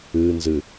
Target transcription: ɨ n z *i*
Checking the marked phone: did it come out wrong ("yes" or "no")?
yes